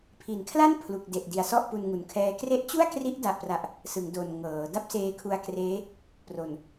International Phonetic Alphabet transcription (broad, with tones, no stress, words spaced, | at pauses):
pʰi˨˩nkʰla˥˩npʰlu˨˩k̚ de˨˩ʔdi˨˩a̯ sɔ˥˩ʔpu˧nŋu˨˩nkʰɛː˦˥ kre˦˥ʔt͡ɕu˥˩a̯kri˦˥ʔ da˨˩ʔpra˨˩ʔ | sɯ˩˦ŋdo˨˩n ŋɤː˩˦ da˥˩p̚seː˧kʰu˧a̯kreː˦˥ | pro˨˩n